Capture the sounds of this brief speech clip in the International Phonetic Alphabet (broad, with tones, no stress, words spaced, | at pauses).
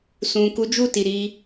sũ˨ ku˨˦d͡ʒu˦˨ti˨ ɾi˧